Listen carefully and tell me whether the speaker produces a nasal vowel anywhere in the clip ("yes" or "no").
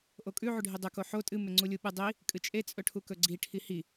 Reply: no